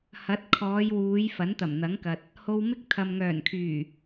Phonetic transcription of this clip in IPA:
h ɐ˨˥ t̚ kʰ ɔː˨˧ j w uː˨˧ j f ɐ˨˥ n t̪ ɐ˨˩ m n̪ ɐ˨˥ ŋ k ɐ˨ t̚ | h o˧ w m ɪ˥ k̚ t̪ʰ ɐ˨ m ŋ œː˨˩ n kʰ yː˨˩

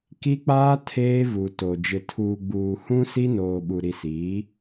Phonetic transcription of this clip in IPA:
k i˦ k͡p aː˦ tʰ eː˦ v u˨ t o˨ d͡ʒ ɪ˨ tʰ uː˨ ɡ͡b uː˨ h ũ˦ s i˦ n oː˨ ɓ u˨ ɾ i˨ s iː˨˦

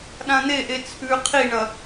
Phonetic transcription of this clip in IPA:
ɗ ã n̪ e ʔ e t͡sʰ ʉ qʰ i ɳ ɐ

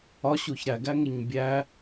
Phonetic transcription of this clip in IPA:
ɒ ɕ u ç ɾ æ ɡ æ ŋ e ɲ bʲ æ

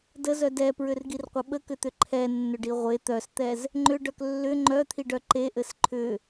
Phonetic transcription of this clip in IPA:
d ə z œ d ɛ p ɹ ʏ r ɡ i r qʷ ə ɓ ə k ʏ t̪ ʏ ǃʰ ɛ nː ʏ ɖ i ʁʷ e t̪ œ s t̪ ɛ z | ŋ͡ǃ ʏ ɖ œ k lː ʏ ŋ͡ǃ œ t̪ʰ i ɖ œ ǃ e ʔ ɘ s ǃʰ ʏ

